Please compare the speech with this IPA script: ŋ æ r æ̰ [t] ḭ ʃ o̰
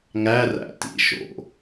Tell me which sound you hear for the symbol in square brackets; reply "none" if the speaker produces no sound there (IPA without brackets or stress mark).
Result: t